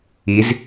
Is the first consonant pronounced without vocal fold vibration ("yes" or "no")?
no